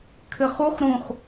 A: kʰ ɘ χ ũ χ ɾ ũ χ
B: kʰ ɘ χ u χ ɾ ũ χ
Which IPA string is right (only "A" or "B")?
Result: B